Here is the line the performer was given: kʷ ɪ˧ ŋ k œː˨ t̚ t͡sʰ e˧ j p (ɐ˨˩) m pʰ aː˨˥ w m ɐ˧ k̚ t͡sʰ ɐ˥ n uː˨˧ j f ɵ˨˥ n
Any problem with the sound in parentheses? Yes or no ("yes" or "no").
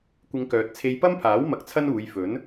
yes